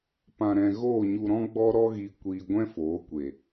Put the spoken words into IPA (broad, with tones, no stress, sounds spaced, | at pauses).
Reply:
p ã˧ ɾ ɛ̃˧ ɣ oː˦˨ ɲ u˧ ɾ ɔ̃˦ ɡ͡b ɔ˦ ɾ ɔ˦ ɣ i˧ kʷ iː˧ ɡʷ ɛ̃˦ f oː˨˦ kʷ e˨